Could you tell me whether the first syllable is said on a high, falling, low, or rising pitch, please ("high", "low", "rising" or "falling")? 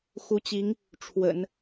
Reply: rising